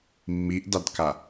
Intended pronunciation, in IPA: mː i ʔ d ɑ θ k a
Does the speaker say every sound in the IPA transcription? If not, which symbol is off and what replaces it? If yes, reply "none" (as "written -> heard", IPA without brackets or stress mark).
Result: θ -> d